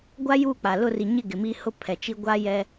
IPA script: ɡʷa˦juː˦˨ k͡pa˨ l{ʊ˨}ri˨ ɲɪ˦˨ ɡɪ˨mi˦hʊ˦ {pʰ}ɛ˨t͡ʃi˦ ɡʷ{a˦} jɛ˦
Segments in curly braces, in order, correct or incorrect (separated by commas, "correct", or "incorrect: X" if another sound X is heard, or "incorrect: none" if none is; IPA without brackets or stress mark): incorrect: ʊ˦˨, correct, correct